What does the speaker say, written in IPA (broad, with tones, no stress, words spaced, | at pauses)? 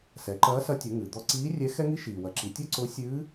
sɛ˩˧ǃɐː˧˥sɐ˧˥ tʲʊ˩˧ ŋɨ˩ d̪ɔ˧ ǀiː˧˥ rʲɛ˧˥xɛ˥ŋi˥ ʃiː˩wɐ˩˧ ǁi˩˧tʲɔ˥ǀʊː˧˥ sʲɨː˧˥